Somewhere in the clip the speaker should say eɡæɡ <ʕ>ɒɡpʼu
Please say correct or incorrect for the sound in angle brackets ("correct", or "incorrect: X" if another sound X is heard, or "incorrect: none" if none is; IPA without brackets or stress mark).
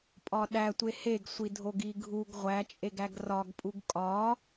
incorrect: r